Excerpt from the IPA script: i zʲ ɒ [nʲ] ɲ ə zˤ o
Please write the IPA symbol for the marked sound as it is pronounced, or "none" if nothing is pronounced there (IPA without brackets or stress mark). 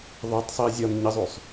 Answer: n